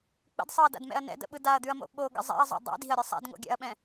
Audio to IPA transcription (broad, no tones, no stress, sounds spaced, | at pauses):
k͡p ə̰ d sˤ ɤ ɐ̯ d a̰ d m ɛ̰ ɐ̯ n ɛ̰ d ə̰ ɓ ɯ d a ɐ̯ d̪ ʉ ɐ̯ m o̰ ɓ o ɡ ə̰ zˤ ɛ̰ ɐ̯ zˤ o̰ dˤ ɛ̰ d i̤ ɐ̯ ɾʲ ɯ sˤ a̰ d ŋ o̰ ɡʲ a̰ ɐ̯ ɓ ɛ̃